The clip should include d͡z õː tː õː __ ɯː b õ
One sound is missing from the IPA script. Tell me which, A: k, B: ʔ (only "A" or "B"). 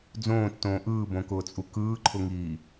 B